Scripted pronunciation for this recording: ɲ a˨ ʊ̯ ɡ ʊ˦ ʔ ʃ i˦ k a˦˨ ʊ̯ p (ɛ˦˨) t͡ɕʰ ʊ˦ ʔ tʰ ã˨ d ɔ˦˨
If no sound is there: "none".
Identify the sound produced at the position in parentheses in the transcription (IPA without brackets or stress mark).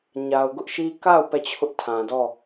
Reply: ɛ˦˨